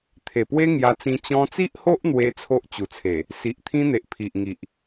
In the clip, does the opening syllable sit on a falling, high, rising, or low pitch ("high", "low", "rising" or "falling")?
low